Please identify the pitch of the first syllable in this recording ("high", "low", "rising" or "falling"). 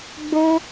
high